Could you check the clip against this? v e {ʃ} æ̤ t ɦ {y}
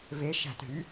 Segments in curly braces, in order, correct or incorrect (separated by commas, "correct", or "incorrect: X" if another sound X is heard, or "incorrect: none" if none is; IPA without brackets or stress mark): correct, correct